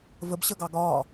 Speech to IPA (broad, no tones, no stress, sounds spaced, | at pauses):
v ə b ɕ ə ɡ ɑ ɡ ɒː